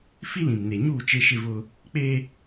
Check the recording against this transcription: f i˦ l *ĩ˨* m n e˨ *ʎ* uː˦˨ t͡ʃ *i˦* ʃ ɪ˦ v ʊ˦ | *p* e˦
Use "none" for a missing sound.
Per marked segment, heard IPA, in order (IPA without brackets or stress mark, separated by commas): ĩ˨, ɲ, e˦, k͡p